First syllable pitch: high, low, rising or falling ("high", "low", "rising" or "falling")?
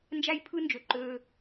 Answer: high